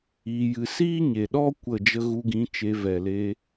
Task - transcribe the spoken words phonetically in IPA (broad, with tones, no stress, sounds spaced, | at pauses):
iː˧ j ɨ˧ s iː˦ ɲ e˨ ɗ ɔ˦ kʷ ə˦˨ d͡ʒ ə˦ ɣ u˧ ɡ ĩ˨˦ t͡ʃ e˧ v ɛ˨ l e˧